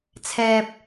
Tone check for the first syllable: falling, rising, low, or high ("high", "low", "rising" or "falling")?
low